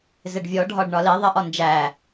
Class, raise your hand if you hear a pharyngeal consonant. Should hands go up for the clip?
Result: no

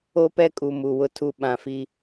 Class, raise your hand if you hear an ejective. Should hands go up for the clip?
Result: yes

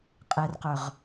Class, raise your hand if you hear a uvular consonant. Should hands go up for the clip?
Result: yes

